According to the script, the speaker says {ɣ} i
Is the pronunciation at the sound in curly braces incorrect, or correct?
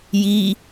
incorrect